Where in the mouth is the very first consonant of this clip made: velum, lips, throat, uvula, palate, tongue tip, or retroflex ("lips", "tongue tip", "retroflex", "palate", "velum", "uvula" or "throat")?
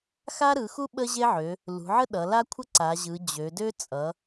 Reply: velum